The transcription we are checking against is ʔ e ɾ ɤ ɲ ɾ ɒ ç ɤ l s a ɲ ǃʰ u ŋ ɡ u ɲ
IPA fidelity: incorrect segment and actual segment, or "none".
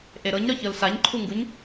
none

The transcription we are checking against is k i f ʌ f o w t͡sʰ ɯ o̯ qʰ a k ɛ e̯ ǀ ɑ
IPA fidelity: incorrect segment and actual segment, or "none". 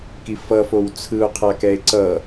ɑ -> ʌ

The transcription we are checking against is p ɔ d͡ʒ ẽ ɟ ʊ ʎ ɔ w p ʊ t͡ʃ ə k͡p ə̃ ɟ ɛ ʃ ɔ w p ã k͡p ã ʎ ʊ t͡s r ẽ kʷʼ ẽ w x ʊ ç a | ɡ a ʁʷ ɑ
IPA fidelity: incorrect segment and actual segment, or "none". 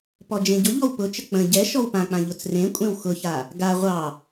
none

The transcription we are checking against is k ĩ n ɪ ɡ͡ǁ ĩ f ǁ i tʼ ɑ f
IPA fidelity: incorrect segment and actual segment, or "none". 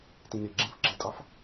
k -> t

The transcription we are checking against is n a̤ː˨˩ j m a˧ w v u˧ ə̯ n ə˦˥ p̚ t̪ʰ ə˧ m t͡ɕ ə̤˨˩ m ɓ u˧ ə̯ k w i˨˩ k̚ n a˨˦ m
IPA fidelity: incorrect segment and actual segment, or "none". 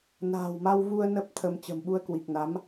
j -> w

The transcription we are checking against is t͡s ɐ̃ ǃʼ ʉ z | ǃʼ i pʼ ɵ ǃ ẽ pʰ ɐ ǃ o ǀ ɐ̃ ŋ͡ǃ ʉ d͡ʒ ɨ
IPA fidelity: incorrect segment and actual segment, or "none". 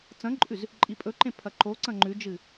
none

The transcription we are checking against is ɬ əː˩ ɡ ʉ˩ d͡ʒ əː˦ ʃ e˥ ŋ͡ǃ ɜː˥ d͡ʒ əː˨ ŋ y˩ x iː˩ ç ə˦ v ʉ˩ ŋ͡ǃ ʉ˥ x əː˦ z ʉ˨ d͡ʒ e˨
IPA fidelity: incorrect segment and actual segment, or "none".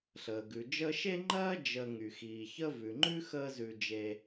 none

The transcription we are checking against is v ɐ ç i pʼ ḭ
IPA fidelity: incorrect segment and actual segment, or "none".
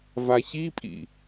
ɐ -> a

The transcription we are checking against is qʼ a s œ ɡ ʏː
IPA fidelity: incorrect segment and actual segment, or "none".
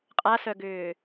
none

